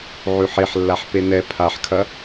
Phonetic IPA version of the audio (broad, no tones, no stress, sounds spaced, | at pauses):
ʕ ʉ ħ e ħ lː a ħ p e n ɛ pʰ a ħ kʰ ɐ